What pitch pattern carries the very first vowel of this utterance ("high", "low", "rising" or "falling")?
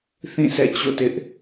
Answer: falling